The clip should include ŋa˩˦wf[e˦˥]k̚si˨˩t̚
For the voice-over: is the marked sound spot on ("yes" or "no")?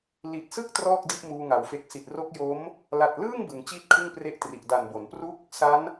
no